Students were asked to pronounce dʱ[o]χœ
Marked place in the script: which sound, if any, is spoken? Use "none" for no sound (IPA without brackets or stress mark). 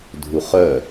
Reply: u